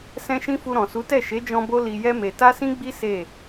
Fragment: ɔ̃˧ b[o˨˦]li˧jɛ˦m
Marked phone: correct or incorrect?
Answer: incorrect: o˦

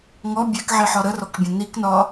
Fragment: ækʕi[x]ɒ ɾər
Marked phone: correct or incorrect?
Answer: incorrect: ħ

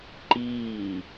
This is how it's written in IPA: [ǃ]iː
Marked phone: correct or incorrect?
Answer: correct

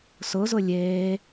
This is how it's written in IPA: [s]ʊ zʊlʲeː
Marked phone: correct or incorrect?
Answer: correct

